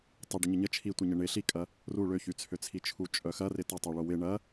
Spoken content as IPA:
tˤ ɪ ɖ ə ɲ ə ɲ ə t͡ʃʰ i tʷ ɐ ɲ ə ɳ ɪ ɬ i kʼ ɐ | r u ɭ ø ç y t͡sʰ ø t͡sʰ i t͡ʃʰ u t͡ʃʼ œ x ɐ r ɪ t ɐ tˤ u ɭ o w ɪ ɳ ɐ

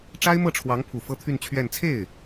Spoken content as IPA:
ʈ͡ʂ a˥ ɪ̯ m ɤ˥˩ ʈ͡ʂʰ w ɑ˧˥ ŋ pʰ u˨˩ f ɤ˥˧ t̪ʰ y˥˧ n t͡ɕʰ ɥ ɛ˥˧ n t͡sʰ e˥˩ ɪ̯

